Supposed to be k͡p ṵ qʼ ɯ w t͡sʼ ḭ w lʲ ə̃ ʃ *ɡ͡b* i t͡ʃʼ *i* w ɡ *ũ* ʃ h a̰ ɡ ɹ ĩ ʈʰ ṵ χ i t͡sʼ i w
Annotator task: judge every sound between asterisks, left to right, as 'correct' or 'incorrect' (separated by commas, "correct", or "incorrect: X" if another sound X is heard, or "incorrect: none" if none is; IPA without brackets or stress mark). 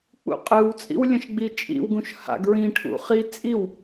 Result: correct, incorrect: ḭ, correct